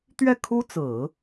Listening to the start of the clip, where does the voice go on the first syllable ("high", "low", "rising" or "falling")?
falling